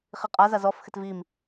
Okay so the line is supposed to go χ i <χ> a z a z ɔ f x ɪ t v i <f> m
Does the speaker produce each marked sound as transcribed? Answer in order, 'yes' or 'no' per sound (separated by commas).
no, no